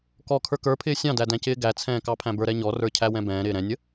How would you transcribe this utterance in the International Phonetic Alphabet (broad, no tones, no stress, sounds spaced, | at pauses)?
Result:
k ɔ kʰ ə˞ k ə˞ pʰ ɪː sʲ ɑ̃ d æ d æ̃ c ɪː ɡ æ t͡sʰ ɛ̃ː k ɑ pʰ æ̃ b ə˞ ɾ ɛ ɲ ɔ r ə˞ cʰ æ w ɛ̃ b ɛ̃ː ɾ ɪː ɾ ɛ̃ nʲ ə